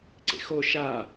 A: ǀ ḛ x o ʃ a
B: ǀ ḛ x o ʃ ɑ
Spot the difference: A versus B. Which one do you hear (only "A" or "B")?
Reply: A